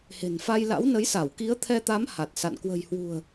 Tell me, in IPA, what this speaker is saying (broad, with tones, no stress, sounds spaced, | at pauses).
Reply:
h e̤˨˩ n f a˧ j l a̰˧˥ w n ə˨˦ j s a˧˩ w k i˨˦ ə̯ t̪ʰ ɛ˧ t̪ a˨˦ m h a˨˩ t̚ s a̰˧˨ n k w ə̤˨˩ j h w ṳ˨˩ ə̯